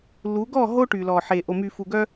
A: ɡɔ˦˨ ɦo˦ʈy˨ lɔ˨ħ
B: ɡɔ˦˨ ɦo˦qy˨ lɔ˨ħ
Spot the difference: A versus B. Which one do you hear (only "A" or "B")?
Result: A